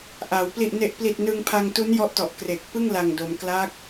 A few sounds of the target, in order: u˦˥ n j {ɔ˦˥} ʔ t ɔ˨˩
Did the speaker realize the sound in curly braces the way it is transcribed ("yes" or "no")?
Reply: yes